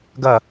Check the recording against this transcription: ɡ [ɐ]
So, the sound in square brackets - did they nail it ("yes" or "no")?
yes